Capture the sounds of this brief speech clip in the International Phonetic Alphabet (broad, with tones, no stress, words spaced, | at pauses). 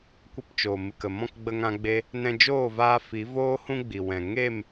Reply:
kʷə˧pt͡ʃoː˨mɨ˨kə˨ mɔ̃˦˨kɡ͡bə˧ŋã˧ɡ͡be˧ | nɛ̃˧d͡ʒoː˦˨vaː˧ fi˨˦voː˦ hũ˦ɡ͡bi˨wɛ̃˨ ŋe˦˨m